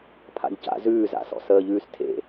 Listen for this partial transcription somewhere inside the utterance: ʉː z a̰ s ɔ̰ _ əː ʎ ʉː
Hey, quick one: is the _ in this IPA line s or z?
s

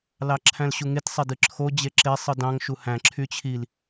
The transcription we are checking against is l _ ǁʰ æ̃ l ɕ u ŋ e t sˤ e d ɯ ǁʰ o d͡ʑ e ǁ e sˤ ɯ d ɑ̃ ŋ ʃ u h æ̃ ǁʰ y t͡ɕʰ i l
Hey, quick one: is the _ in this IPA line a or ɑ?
ɑ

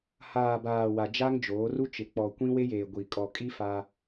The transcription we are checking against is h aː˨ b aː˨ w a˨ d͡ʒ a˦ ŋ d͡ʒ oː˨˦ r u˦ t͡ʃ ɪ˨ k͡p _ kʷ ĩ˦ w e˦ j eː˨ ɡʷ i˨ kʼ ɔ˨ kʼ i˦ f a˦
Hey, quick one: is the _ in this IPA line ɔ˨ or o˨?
ɔ˨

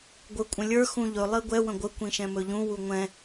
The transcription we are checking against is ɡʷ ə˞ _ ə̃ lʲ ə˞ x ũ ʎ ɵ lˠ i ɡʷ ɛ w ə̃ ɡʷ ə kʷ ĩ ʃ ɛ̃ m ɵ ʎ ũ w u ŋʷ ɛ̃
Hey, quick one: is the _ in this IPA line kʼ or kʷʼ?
kʷʼ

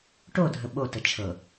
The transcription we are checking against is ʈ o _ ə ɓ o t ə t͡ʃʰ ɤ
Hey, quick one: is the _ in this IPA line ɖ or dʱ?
dʱ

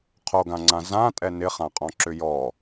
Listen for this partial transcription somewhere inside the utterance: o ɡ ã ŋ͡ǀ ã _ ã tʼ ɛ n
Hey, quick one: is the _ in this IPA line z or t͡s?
z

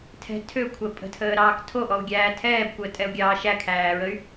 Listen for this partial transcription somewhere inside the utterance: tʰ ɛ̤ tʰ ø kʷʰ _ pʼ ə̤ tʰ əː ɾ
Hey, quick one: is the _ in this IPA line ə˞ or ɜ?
ɜ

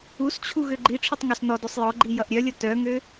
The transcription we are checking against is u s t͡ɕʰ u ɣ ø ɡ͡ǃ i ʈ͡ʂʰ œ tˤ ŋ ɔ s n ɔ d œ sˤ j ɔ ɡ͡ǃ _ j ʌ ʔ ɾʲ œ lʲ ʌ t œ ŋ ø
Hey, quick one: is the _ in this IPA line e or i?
i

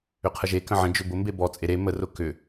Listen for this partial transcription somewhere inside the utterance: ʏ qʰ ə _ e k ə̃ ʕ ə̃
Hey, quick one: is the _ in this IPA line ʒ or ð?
ʒ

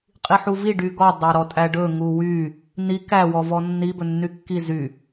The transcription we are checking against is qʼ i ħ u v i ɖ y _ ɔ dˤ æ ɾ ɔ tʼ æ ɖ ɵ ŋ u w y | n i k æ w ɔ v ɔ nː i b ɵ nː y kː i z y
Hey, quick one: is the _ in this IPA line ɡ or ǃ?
ɡ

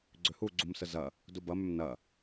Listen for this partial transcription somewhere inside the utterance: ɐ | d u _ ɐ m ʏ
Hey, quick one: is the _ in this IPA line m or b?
b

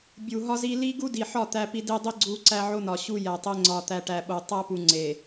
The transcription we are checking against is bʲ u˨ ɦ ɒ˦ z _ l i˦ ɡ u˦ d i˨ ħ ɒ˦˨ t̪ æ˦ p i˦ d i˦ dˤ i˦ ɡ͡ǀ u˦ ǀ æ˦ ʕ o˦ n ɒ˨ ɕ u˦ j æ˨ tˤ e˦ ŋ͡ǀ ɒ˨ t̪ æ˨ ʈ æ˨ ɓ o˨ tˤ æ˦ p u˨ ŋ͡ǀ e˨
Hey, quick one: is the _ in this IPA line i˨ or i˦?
i˦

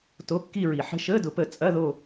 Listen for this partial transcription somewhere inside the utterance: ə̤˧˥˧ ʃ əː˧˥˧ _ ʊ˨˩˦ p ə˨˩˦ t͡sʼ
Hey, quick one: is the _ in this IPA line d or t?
d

